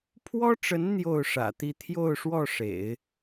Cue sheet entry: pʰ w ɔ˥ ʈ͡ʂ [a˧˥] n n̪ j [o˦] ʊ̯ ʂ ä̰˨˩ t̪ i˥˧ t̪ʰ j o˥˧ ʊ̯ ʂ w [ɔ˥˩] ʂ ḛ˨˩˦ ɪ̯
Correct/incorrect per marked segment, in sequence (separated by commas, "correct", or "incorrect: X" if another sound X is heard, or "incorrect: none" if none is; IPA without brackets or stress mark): incorrect: ə˧˥, incorrect: o˥˩, correct